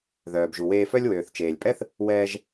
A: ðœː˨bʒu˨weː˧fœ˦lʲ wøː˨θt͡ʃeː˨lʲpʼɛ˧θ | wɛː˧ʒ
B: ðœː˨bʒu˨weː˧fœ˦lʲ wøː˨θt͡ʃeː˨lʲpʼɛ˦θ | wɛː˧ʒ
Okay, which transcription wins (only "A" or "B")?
B